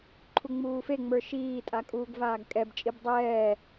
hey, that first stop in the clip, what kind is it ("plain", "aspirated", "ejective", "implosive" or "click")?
click